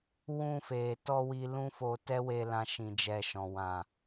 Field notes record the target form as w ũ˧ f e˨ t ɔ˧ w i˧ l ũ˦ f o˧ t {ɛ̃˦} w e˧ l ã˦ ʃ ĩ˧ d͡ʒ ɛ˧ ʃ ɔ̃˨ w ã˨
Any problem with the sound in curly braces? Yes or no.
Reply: yes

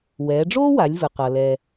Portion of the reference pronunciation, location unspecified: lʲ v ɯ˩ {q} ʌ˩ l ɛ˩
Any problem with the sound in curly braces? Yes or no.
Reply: no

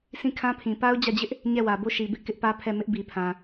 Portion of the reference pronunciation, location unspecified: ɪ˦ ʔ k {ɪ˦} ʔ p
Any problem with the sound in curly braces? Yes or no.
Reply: no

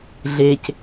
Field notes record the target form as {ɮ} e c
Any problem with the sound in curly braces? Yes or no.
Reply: no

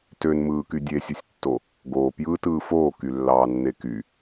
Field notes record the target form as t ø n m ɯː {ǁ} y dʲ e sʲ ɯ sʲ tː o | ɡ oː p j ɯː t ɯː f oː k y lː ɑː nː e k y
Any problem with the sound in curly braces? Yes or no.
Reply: yes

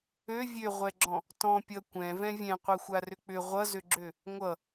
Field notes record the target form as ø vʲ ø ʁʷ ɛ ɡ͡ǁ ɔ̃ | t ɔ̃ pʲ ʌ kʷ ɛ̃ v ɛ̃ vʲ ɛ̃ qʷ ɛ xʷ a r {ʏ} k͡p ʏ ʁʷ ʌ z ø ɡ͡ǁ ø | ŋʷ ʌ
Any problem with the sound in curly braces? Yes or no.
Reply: no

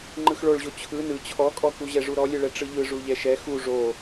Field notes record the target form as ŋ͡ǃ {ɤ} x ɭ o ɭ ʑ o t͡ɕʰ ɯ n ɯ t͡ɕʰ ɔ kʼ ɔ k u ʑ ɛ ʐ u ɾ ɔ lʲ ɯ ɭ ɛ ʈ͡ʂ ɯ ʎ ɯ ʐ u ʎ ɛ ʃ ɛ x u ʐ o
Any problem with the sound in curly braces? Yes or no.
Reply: yes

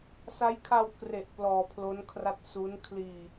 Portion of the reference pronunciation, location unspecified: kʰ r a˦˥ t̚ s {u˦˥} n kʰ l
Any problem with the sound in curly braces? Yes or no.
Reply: no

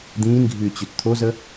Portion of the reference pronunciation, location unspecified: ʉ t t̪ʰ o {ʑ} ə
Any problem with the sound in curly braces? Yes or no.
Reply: yes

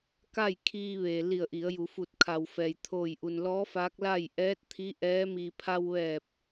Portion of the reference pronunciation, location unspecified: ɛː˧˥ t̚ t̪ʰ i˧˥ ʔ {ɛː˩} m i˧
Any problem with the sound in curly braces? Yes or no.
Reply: yes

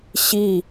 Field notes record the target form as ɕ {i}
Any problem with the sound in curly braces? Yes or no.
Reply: no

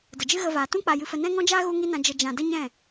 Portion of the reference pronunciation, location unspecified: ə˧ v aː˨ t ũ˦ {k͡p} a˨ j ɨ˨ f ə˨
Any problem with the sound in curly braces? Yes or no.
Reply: no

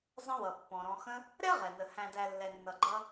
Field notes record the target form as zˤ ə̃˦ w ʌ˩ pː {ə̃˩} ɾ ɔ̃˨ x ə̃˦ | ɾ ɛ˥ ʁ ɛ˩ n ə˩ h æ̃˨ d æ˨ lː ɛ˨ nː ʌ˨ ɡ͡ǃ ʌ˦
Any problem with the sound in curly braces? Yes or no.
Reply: yes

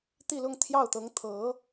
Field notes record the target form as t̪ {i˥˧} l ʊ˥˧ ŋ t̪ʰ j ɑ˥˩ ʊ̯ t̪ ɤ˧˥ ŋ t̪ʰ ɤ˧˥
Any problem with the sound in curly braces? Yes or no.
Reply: no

